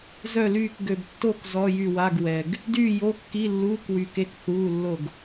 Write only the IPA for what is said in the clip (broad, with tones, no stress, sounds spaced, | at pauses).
z œ˥˨ l yː˥˨ k ɡ ø˨ b tː o˥˨ k z ɔ˧˥˧ j y˥˨ w a˧˥˧ ɡ w ɛ˨ ɡ | d yː˥˨ j o˧˥˧ kː i˧˥˧ lː uː˧˥˧ k w y˨ k e˧˥˧ k θ uː˧˥˧ lː o˥˨ ɡ